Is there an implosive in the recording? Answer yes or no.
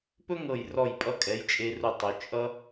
no